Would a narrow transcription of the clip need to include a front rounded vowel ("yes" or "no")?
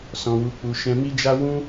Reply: no